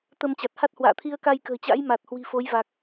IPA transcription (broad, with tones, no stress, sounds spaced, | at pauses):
t̪ ə˧ m t͡ɕ a˨˩ t̚ h a˦˥ t̚ h w a̰ː˧˨ t̪ʰ i˧ ə̯ k a˧ j k ə̤ː˨˩ t͡ɕ a̰˧˥ j m a˨˩ t̚ h w i̤˨˩ f o˨˦ j v a˨˩ k̚